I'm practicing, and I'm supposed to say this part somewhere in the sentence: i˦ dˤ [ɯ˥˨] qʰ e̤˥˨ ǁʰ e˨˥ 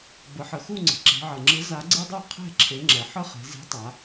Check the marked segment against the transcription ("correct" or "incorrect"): incorrect